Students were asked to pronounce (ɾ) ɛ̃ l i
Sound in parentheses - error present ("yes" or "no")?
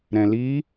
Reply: no